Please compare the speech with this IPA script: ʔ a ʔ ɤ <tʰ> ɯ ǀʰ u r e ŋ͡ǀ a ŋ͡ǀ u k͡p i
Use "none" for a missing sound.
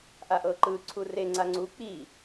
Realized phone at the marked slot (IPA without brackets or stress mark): ǃ